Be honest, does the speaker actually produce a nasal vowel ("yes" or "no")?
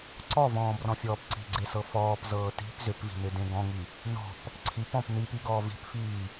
yes